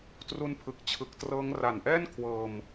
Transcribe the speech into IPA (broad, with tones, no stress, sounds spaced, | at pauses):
t r u˧ n pʰ ɯ˨˩ k̚ t͡ɕʰ ɯ˨˩ k̚ t r ɤː˦˥ ŋ r a˨˩ n ʔ ɛː˥˩ n kʰ w ɤː˧ m